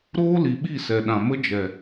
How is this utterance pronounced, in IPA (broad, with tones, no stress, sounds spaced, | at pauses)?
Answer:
ɾ oː˦ l i˨ ɓ i˦˨ s ɛ˨ ɗ ã˨ m ə˦ d͡ʒ ɛ˨